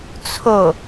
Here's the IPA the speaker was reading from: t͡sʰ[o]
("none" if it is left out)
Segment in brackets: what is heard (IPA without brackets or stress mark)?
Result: o